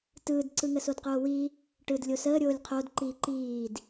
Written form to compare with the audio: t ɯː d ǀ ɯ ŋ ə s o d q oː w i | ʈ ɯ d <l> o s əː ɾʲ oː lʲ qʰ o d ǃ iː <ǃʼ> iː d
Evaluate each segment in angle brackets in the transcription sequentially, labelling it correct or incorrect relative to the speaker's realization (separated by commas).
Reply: incorrect, incorrect